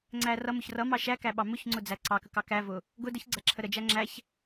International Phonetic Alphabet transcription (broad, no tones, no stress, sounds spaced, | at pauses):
ŋ͡ǀ æ r ʌ m ʊ ç r ʌ m ɑ ʃ æ k æ ɓ ɑ m ʊ ç ŋ͡ǀ ʊ d͡z æ ǀ ɑ k ə k ɑ k æ v ʊ | ɡ ʊ d ə ç ɡ͡ǀ æ ǁʰ ə ɾ ə d͡ʒ æ ŋ͡ǁ æ ç